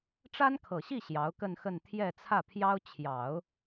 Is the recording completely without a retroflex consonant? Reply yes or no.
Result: no